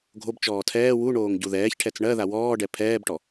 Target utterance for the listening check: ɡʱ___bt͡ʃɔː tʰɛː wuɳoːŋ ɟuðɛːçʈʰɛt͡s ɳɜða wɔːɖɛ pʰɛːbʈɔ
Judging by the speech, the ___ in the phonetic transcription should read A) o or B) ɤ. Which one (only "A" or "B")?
A